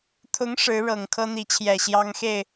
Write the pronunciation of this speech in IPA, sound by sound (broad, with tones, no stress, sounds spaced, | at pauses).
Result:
t̪ʰ ʊ˧˥ ŋ ʂ ɻ̩˧˥ ɻ ɤ˨˩ ŋ kʰ ɤ˥ n̪ i˧˥ t͡ɕʰ j ɛ˨˩ ɕ j ɑ˥ ŋ x e˥˩ ɪ̯